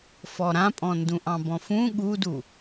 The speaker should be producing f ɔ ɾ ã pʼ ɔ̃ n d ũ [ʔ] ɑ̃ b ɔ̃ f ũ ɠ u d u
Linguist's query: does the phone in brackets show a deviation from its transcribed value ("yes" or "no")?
no